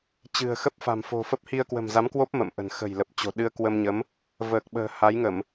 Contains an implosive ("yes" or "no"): yes